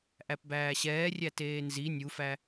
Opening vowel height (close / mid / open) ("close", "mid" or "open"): open